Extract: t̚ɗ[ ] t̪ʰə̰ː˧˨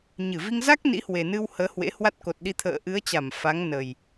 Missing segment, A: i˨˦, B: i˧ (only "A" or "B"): B